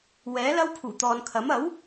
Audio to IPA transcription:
wɛː˨˥lɐ˥w pʰuː˨˩t̪ɔː˨nkʰɐ˨˥m ɐ˨˥w

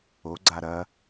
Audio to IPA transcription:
oɡ͡ǀa ɾɐ

